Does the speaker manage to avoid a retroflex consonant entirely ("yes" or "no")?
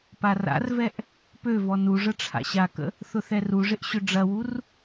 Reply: no